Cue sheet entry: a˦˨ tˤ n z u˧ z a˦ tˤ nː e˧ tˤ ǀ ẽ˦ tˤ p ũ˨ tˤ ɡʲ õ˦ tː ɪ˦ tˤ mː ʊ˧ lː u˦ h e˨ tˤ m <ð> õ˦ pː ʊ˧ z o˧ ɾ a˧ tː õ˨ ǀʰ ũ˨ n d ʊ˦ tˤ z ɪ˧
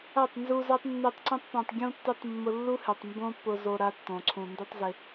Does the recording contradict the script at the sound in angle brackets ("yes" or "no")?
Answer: yes